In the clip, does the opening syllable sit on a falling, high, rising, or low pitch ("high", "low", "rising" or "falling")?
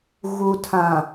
low